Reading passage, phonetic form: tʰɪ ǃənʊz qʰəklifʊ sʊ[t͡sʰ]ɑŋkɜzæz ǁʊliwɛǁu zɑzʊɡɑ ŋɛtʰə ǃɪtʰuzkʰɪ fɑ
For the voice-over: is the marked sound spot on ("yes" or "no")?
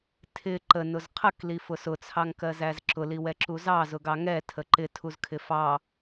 yes